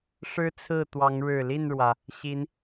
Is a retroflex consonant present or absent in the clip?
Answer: present